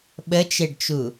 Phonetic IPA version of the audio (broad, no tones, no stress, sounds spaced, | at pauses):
ɓ ə t͡ʃ e ɖ t͡ʃ u